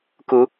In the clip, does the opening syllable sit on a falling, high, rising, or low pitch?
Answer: rising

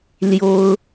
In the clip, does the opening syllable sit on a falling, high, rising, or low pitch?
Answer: high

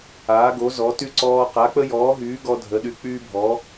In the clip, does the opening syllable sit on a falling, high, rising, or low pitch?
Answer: rising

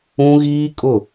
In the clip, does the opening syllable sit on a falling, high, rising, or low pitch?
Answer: high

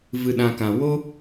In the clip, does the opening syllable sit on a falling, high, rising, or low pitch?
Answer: low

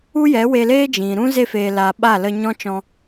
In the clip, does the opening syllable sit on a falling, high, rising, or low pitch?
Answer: high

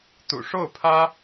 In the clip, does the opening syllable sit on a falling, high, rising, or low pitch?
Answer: low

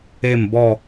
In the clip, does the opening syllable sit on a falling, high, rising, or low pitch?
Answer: falling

